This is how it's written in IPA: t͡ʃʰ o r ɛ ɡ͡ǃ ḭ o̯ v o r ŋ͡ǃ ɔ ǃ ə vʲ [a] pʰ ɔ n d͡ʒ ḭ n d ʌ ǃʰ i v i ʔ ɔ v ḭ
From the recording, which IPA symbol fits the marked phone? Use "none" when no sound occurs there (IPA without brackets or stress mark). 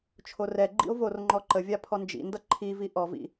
a